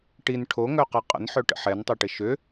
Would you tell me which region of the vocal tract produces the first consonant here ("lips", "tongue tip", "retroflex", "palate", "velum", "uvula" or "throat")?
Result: retroflex